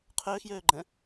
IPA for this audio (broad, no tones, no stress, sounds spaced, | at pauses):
qʰ øː x j øː ɡ͡ǃ ɛ̃